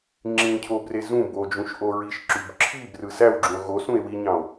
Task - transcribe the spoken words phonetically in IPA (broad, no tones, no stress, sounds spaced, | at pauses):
ŋ͡ǁ ĩ cʰ o b r e z ũ b o d͡ʒ ũ ʃ ʔ o ɹ i ʃ ǁ y b ǁʰ i b r ɯ s æ w ɡ͡ǁ ũ o̯ ɣ o s ũ e̯ w i ɲ ɑ̃ o̯